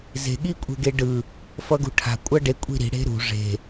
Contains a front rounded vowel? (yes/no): no